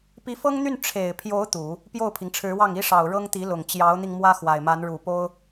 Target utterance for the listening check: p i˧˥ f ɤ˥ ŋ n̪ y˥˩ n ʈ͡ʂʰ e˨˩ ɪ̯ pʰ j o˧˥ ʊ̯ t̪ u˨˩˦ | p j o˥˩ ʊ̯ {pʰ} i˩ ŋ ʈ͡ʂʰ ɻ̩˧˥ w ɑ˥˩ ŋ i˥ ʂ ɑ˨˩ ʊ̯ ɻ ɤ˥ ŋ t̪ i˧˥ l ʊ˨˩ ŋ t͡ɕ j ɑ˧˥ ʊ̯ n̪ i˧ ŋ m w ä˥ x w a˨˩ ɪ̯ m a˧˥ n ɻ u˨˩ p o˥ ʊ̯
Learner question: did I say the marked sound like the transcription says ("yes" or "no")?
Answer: yes